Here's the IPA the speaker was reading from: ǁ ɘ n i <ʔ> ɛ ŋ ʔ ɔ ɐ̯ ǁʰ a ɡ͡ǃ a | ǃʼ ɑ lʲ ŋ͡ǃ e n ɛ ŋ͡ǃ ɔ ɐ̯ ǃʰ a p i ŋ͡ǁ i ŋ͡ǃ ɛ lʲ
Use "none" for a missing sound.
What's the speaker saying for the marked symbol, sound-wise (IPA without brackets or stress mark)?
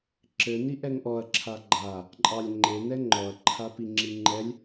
ʔ